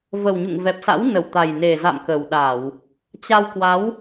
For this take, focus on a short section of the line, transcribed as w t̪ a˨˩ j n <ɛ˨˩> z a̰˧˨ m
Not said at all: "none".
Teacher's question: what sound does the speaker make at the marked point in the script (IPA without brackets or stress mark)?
e˨˩